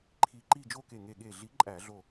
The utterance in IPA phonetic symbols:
ǃʰ i˧˩ ǃ i˥˨ d͡ʒ o˥˨ k e˧˩ ŋ e˧˩ ɠ e˧˩ ɮ i˨˥ ǃʼ æ˧˩˧ ɮ o˧˩

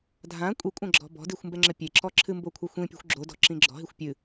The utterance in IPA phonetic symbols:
dʱ ã kʷʼ i kʷʼ ɐ̃ ɡ͡ǁ ɔ̤ b ɔ̤ d i xʷ m b ɛ ŋ͡ǁ ɘ pʲ e ǁ ɔ ǁʰ ɨ m b o kʷʰ ɛ xʷ ĩ pʲ o̤ xʷ ɡ͡ǁ o d ɔ̤ ǁ ĩ ɡ͡ǁ ɔ̤ ɦ i xʷ pʲ ɨ

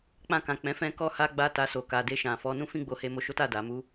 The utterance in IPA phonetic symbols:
k͡p ã˧ k ã˨ k͡p ɛ̃˨˦ f ɛ̃˧ k ɔ˧ h a˧ ɡ͡b a˧ t a˧ s o˨ k a˨ d e˧ ʃ ã˨ f ɔ˨˦ n ũ˦ f ĩ˦ ɡ͡b o˧ h e˧ m o˧ ʃ o˦ t a˦˨ d a˨ m u˨˦

